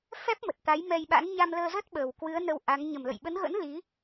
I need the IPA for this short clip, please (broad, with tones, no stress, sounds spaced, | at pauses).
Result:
f ɛ˦˥ p̚ m ə˨˩ t̚ t̪ a˨˦ j m ɛ˧ j ɓ a̰˧˥ n ɲ a˧ m l əː˧ z ə˦˥ t̚ ɓ əː˨˩ w k w ɨ˨˦ ə̯ n ə˧ w ʔ a˨˦ ŋ ɲ ə˨˩ m l ə̰˧˨ j ɓ ə˨˦ n ɣ ə̰˧˥ n l i˨˦